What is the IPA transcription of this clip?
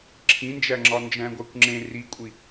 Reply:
ǁʰ ĩ n d͡ʒ æ ŋ͡ǁ ɒ n d͡ʒ æ̃ ɡʷ æ kʷ ŋ͡ǁ ẽ r i kʷʼ i

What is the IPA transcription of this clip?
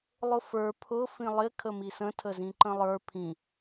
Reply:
lˠ ʊ f ə˞ pʰ ʊ f ĩ lˠ ɪ kʰ ə m i s ə̃ tʰ ə z ĩ ǃ ə̃ lˠ ə˞ pʰ ĩ

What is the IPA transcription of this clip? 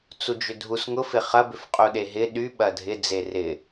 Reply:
t͡s u d͡ʒ ʏ dʱ u s ŋ ʊ f ɪ χ ɐ b ʏ f qʼ u ɗ e ɦ ɪ ɗ y ɓ ɐ dʱ ɪ d͡z e r ɪ

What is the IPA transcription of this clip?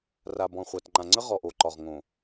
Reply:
r a˨ b ɔ̃˨ χʷ a˨ t ŋ͡ǃ ã˨ ŋ͡ǀ ə˦ ʁ ɔ˨ ʔ o˨ ǃ ɒ˨ ʁ ŋ õ˨

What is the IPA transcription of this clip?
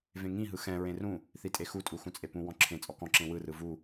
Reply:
v ẽ ŋ ĩ ɦ ɯ x ɛ̃ ɹ ẽ r ũ | θ i tʼ e x u tʼ u x ũ t͡sʼ e p ũ w ɔ̃ ǁʰ ẽ t͡sʼ ɔ k ɔ̃ ǁ ẽ w ɯ r ɯ v u

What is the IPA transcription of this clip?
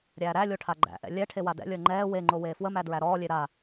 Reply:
ɾʲ æː ɾ æ lʲ o ʈʰ a ɡ͡ǃ æ̰ ʔ ɛ̰ lʲ ɛ ʈʰ e w a d ɛ̰ lʲ əː ŋ͡ǃ ɛː w e ŋ͡ǃ o w eː f w ə m æ d ɹ æ ɾ ɔː lʲ e ɾ a

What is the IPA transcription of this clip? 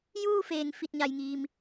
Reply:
j uː˥˨ f eː˩ ŋ f i˧˩ t̚ ɲ a˩ j ŋ iː˩ m

